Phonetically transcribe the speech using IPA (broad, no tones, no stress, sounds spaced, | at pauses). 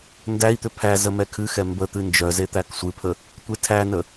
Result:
n d æ i̯ t̪ ʏ pʰ æ z ə m ɛ kʰ ɨ x ɛ m b ə t̪ ɨ n d͡ʒ œ z e t̪ æ k sʷ ɨ pʰ ə | tʷ e tʰ æ n ə